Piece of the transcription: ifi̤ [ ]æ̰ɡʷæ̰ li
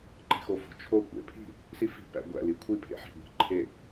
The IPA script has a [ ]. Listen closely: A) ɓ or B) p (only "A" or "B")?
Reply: B